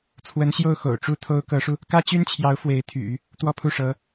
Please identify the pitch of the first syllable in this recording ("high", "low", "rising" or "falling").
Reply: rising